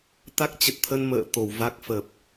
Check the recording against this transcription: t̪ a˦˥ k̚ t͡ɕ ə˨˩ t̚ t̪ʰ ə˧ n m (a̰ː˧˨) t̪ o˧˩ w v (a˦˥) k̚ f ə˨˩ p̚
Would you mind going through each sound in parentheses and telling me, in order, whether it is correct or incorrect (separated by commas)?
incorrect, correct